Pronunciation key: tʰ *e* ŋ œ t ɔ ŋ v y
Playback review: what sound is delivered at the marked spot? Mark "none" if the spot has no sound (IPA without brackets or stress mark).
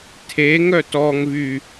e